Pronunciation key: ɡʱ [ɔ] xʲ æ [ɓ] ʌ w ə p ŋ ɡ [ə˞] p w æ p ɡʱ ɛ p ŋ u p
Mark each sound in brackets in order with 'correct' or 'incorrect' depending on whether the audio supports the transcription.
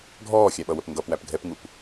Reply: incorrect, correct, incorrect

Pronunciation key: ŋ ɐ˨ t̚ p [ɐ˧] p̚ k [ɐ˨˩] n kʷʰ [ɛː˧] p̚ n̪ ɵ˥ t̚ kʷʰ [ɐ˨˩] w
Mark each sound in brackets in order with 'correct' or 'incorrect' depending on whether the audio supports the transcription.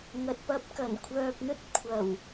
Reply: correct, correct, incorrect, correct

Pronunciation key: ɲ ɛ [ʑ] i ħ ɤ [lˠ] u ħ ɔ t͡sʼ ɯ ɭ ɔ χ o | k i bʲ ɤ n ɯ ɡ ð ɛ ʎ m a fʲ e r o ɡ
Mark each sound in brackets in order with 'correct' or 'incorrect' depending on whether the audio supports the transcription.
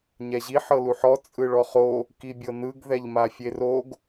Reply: correct, incorrect

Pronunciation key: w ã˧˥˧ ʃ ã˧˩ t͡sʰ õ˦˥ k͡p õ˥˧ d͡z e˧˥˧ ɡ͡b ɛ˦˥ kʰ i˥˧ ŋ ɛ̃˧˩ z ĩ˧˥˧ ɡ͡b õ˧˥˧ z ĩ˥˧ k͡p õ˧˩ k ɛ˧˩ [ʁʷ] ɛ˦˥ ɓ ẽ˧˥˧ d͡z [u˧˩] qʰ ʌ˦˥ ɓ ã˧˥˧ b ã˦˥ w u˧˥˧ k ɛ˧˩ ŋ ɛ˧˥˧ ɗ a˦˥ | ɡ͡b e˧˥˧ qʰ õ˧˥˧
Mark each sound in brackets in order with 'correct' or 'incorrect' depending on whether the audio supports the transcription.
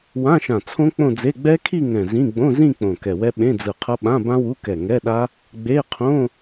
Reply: incorrect, incorrect

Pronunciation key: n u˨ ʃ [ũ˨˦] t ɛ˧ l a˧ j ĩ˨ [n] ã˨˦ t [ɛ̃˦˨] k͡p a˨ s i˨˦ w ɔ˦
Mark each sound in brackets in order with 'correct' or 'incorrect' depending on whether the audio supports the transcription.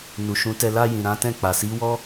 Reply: correct, incorrect, correct

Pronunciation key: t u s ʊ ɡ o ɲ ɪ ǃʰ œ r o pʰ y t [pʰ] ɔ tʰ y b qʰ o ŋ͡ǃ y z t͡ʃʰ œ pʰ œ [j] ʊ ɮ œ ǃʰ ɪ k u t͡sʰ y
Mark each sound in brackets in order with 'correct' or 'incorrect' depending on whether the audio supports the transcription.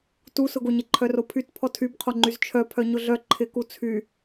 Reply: correct, incorrect

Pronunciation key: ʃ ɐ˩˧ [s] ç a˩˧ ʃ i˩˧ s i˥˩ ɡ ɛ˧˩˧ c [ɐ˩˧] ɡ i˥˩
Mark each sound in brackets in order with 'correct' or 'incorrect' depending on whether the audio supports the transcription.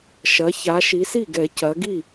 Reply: incorrect, correct

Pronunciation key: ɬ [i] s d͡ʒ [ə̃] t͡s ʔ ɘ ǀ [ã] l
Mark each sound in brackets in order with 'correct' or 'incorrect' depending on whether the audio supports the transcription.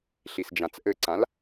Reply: correct, incorrect, correct

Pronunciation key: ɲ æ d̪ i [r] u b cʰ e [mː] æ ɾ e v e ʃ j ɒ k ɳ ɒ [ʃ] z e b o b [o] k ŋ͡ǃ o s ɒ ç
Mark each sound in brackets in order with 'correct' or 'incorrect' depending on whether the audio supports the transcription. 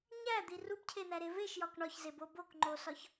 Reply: correct, incorrect, incorrect, correct

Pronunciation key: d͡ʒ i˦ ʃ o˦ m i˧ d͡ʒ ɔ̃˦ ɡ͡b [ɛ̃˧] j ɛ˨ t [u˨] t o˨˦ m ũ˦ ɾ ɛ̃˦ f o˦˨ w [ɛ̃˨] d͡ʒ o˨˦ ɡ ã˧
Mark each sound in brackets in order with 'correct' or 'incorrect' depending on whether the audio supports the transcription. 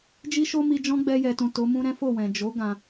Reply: incorrect, incorrect, correct

